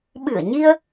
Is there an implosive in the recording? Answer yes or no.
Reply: yes